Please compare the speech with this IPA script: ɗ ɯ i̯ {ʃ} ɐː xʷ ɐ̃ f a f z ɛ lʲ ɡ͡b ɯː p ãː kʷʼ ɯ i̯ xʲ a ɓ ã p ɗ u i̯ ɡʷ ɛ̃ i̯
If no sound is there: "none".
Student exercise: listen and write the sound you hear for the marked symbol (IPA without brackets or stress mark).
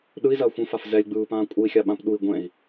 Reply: z